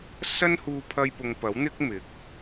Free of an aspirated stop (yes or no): no